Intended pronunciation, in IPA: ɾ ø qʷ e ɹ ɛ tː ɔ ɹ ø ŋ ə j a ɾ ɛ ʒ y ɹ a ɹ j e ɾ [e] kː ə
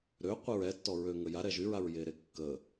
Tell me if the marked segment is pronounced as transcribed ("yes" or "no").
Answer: yes